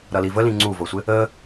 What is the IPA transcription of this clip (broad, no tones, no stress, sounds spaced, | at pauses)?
ɾ ʌ l i v ə l ĩ ŋ͡ǀ u v ɤ sʷ ɪ | ə